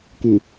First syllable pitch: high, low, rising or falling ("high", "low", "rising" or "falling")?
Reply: low